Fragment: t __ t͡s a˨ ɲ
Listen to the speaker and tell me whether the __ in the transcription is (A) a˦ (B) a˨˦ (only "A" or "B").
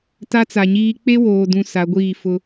A